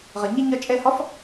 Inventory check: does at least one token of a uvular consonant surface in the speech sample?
yes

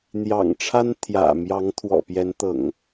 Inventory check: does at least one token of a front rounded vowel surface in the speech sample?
no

